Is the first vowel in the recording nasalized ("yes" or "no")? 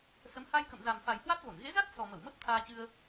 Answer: no